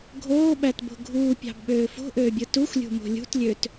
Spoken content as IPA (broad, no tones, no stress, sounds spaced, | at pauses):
ɡʱ oː ɓ æ t b o̤ ɡʱ uː pʲ ɑ̤ b ɓ øː f o̤ ʔ øː bʲ ɯ t u xʷ lʲ ṳ m o̤ lʲ ṳ t lʲ ø t